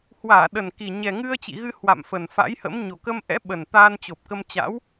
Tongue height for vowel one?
low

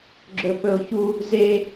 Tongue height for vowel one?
mid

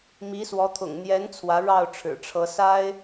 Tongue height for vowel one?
high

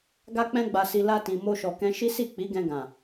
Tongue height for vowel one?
low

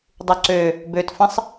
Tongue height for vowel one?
high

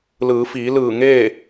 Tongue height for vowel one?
high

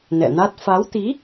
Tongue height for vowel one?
mid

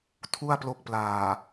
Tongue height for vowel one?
high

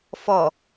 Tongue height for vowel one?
mid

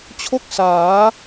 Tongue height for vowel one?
mid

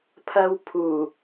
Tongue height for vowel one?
low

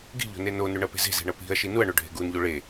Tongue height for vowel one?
high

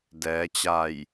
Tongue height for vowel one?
mid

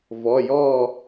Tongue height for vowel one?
mid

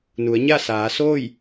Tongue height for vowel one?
high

